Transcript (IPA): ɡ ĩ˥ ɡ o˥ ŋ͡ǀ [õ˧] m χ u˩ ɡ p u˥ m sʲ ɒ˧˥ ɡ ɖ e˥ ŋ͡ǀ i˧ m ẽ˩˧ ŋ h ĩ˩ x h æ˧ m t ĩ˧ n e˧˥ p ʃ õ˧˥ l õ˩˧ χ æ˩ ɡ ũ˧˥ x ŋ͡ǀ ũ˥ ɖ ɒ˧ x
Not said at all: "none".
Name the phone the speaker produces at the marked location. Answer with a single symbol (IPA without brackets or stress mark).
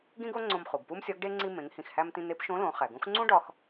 õ˧